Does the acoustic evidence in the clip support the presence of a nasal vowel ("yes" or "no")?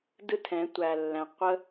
yes